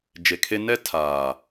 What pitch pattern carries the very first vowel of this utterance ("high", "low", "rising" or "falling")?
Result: low